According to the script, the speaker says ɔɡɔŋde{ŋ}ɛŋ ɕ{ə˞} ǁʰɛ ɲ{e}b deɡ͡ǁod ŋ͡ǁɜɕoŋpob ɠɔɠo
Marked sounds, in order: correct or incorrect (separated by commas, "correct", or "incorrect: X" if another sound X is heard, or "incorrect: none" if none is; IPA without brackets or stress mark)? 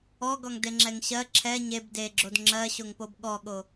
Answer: incorrect: ŋ͡ǁ, incorrect: ɜ, correct